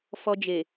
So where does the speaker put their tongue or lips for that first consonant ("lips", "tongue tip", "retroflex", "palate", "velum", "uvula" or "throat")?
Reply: lips